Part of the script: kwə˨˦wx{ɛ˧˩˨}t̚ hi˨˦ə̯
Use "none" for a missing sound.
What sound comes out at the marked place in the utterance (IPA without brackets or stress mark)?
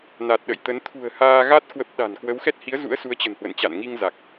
ɛ˦˥